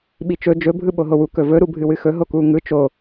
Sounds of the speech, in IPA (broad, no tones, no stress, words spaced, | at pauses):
ɓit͡ʃɵ d͡ʒɵ bʱɯɓoɦowu kɵvɵ ɾubʱɨwɨxɵ ɦokuŋɯ t͡ʃo